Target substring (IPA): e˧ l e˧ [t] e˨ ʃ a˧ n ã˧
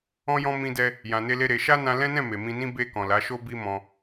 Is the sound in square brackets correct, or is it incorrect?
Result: incorrect